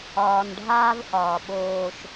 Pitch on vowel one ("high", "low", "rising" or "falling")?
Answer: low